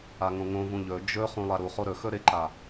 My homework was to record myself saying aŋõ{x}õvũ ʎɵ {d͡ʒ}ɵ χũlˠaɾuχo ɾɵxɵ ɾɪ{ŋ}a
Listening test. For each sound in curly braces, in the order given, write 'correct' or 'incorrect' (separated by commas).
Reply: incorrect, correct, incorrect